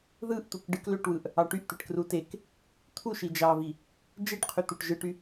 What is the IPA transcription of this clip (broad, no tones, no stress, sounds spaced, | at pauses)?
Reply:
ð ɯ ʔ t̪ u k ɖ ɯ k l ø ʈ w ɯ ʔ | ɑ ʈ y ʔ t̪ e ʈ k r u t e k | t̪ʰ u ʃ i d͡ʒ ɑ v i | d͡ʒ e ʈ qʰ y t̪ u ʈ ʒ ɯ ʈ y